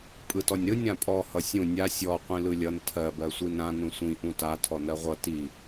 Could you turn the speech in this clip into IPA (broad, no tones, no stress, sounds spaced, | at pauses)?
pʼ ɯ t ɔ nʲ ɾ ɯ nʲ ɾ ã pʼ ɔ h ʌ sʲ ũ nʲ a sʲ ɔ qʷ ĩ l ɯ lʲ ʌ n tʰ ɜ b ɜ sʷ i n ɾ ã n ũ sʷ ĩ ʔ ũ t a tʰ ɔ n ɜ ʁʷ ʌ t i